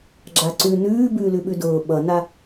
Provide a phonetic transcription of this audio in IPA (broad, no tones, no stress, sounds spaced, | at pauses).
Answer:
ɡ͡ǁ a ǀ ʉ n ʉː b ʉː l ʉ ɓ ʉ d ʊː ɓ ʌ n a